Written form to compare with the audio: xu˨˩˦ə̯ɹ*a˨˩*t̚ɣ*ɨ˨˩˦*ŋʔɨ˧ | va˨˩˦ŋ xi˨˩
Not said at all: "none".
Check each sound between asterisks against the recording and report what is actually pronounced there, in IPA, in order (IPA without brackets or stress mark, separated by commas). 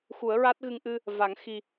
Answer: a˦˥, ɨ˧